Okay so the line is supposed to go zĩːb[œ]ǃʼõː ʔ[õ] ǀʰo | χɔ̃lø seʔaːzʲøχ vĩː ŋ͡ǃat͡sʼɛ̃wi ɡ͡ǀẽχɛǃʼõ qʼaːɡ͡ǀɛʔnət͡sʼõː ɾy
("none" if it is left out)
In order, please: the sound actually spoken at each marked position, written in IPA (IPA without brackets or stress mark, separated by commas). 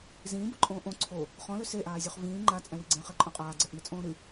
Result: œ, õ